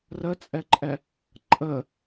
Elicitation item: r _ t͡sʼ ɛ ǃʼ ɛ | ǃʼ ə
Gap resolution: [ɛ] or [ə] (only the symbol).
ə